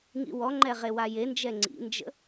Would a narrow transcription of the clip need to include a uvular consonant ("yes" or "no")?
yes